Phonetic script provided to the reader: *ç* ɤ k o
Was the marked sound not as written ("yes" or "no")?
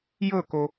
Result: yes